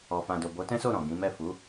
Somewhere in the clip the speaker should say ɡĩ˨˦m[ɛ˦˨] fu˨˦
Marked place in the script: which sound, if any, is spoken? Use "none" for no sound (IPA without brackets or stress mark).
ɛ˦˨